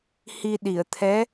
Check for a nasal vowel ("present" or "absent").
absent